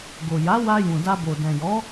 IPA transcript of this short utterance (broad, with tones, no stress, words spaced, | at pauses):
ɡo˨ja˨˦wa˧ jũ˨da˧bo˨ dɛ̃˨jɔ˨˦